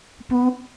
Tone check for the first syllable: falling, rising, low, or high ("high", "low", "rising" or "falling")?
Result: high